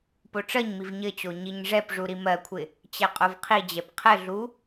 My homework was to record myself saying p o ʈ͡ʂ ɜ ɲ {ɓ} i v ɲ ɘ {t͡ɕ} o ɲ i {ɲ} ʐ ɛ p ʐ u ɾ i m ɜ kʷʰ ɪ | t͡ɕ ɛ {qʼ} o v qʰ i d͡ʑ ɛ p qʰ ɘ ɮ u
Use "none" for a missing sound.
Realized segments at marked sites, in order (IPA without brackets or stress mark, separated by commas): m, t͡ɕ, ɲ, qʼ